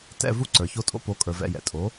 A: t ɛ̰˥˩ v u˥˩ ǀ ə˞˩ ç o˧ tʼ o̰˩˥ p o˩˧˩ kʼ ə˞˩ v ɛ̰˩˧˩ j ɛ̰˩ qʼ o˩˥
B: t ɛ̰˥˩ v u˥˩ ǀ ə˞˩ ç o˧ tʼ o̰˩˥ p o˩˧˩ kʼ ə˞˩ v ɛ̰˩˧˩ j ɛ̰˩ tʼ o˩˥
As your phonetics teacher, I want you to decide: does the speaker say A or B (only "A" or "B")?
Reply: B